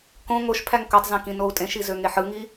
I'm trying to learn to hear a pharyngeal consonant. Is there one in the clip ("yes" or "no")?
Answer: yes